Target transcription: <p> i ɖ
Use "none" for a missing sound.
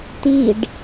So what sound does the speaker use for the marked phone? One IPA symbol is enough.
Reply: t̪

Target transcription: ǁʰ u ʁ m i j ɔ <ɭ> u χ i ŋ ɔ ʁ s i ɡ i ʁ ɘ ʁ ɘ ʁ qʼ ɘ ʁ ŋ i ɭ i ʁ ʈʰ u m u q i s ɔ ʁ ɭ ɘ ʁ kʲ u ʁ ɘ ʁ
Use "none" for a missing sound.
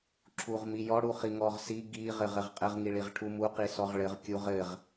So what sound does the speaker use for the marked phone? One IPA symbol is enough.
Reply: ɽ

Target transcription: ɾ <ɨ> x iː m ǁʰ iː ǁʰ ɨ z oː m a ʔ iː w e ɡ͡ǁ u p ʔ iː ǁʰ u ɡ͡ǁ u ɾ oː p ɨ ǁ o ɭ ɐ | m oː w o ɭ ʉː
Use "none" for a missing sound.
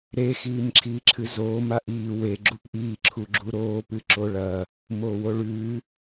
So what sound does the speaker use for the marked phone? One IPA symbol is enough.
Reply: e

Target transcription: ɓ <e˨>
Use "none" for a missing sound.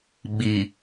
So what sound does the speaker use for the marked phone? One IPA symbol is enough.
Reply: i˨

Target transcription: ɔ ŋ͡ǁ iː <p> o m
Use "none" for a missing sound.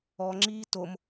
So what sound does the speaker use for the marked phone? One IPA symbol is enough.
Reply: t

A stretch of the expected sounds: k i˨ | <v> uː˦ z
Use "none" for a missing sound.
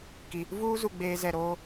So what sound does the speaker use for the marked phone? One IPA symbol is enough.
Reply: v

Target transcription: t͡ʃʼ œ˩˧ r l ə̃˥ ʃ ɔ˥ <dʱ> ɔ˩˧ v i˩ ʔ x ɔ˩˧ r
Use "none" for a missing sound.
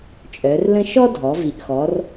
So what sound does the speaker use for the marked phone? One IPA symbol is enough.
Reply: dʱ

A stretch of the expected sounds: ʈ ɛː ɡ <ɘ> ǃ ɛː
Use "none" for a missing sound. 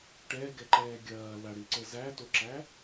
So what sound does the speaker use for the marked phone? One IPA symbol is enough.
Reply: ɛ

